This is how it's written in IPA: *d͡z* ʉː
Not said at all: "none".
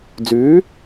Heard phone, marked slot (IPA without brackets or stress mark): d͡z